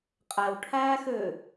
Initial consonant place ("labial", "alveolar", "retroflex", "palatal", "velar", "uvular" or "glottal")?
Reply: uvular